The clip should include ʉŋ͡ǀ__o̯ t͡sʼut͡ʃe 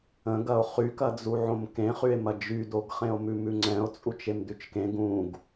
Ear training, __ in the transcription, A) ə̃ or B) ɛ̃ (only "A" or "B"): B